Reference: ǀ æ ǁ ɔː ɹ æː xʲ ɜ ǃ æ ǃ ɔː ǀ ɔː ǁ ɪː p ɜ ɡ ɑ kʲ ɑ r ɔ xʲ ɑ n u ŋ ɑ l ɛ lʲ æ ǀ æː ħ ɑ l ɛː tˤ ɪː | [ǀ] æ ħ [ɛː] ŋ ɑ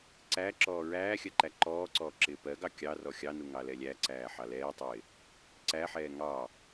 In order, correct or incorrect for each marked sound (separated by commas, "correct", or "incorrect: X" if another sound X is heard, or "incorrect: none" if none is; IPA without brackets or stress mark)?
correct, correct